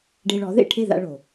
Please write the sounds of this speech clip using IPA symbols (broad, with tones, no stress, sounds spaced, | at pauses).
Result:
ɖ e˧ ɭ ɔ˩˥ ð ḛ˥˩ ʈʰ e˥˩ ð a̰˧ ɭ o˩